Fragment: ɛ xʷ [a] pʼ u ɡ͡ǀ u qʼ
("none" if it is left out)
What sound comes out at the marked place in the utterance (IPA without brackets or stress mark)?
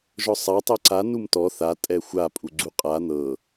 a